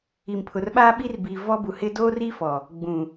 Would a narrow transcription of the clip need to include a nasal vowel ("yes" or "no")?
yes